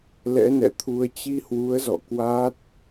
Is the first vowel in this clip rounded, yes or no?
no